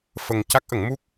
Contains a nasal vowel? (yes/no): no